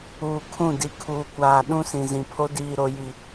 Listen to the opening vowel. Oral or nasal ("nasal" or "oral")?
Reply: oral